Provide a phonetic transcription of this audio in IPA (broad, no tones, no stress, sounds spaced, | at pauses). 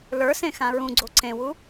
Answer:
l ə˞ s ẽ x ã ɹ ũ ɡ͡ǀ o ǀ ẽ w u